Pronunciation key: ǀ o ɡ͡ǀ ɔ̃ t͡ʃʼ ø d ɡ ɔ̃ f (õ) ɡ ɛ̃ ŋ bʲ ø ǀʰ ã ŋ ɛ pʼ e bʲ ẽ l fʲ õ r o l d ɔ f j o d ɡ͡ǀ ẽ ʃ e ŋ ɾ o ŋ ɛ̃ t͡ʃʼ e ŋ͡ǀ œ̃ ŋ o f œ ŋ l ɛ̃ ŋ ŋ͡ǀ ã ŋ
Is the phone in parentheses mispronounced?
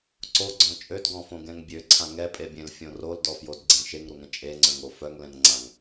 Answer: no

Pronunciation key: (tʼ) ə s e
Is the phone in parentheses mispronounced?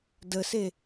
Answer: yes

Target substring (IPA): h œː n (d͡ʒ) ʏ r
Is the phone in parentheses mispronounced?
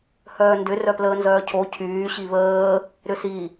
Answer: yes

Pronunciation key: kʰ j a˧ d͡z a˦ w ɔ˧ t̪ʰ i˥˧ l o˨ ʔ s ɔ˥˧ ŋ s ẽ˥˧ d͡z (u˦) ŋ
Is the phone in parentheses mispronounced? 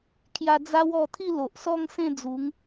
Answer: yes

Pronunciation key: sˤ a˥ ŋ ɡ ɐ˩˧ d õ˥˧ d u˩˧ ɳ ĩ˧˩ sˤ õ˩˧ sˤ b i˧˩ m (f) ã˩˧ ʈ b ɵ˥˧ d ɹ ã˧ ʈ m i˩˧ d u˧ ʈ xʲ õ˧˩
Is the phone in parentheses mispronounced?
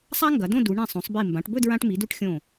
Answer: yes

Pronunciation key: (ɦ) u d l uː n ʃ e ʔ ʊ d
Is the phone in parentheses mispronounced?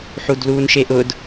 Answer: yes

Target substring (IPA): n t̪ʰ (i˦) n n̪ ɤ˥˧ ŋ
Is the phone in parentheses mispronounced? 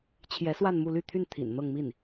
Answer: yes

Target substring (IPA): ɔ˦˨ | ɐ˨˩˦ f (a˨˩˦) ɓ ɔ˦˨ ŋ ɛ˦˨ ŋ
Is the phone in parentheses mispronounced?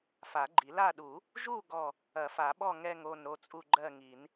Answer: no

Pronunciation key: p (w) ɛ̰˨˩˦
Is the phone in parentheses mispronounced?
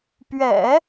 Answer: yes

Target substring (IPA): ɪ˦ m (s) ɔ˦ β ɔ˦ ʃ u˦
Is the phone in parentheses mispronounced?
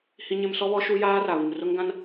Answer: no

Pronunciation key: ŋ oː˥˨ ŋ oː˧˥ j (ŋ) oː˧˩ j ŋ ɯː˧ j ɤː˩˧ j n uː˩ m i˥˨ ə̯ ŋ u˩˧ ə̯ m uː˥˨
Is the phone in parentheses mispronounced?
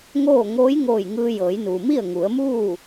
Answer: no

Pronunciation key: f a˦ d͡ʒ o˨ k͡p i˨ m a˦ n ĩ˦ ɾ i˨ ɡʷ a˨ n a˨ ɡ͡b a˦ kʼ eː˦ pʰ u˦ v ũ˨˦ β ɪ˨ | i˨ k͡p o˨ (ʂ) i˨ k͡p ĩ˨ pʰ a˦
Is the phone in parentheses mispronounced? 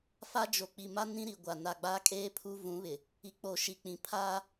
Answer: yes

